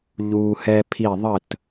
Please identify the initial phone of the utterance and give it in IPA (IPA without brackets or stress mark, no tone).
ʎ